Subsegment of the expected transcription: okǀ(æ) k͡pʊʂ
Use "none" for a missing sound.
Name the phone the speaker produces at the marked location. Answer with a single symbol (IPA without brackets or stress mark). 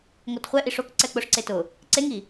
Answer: ɛ